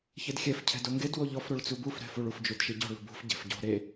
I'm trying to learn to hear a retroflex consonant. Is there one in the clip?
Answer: yes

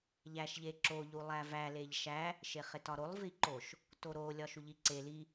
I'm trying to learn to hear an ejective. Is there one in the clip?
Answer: no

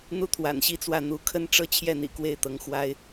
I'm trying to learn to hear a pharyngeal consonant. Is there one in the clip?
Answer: no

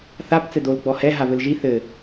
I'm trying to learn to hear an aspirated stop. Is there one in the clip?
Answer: no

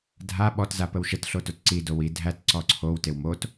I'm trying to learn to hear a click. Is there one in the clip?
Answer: yes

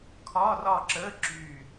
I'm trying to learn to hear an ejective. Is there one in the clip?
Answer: no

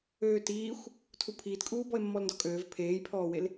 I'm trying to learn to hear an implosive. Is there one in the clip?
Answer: no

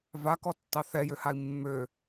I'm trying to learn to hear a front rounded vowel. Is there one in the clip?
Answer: yes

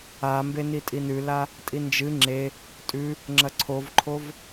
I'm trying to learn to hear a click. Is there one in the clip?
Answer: yes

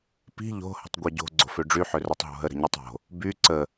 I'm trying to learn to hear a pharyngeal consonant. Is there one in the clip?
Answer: yes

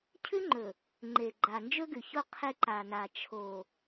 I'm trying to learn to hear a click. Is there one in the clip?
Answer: yes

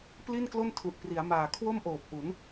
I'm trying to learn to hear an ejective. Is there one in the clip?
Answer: no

